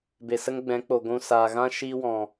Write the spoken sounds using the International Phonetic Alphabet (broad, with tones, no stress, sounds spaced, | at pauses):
b e˨ s ə˦ ŋ ɡ͡b ɛ̃˨˦ k͡p o˨ ɡʷ ũ˨ s aː˨ ɣ ã˦ ʃ iː˦ w ɔ̃˨